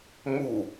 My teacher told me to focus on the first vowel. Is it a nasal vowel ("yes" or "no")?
no